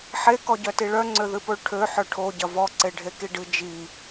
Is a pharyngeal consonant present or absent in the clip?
present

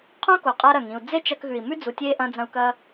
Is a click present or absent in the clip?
absent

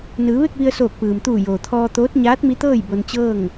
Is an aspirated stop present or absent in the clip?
present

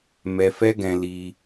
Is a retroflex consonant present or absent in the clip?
absent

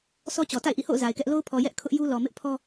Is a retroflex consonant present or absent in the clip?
absent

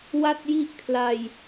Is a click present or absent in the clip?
absent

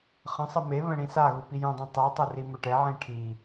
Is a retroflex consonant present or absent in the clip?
present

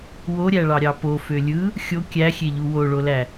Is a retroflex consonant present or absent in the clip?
present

